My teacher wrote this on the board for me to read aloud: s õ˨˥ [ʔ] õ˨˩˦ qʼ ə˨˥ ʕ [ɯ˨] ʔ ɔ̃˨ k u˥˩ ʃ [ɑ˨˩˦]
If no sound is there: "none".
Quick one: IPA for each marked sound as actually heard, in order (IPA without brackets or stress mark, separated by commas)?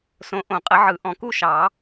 ʔ, ɯ˨, ɑ˨˩˦